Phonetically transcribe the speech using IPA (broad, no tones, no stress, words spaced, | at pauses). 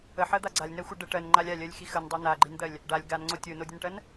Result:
əħɜd̪a ɡ͡ǀalʲnɜxʷɜ ɖə ʈɜnŋ͡ǃalʲ alʲɜlʲxi xəndˤo naɡ͡ǃind̪ɜlʲ | ɖalʲ ɡanŋ͡ǀo tʲonodʲənʈɜn